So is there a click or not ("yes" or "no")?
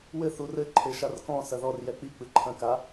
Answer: yes